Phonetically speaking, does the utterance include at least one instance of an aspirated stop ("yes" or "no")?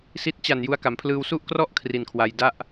yes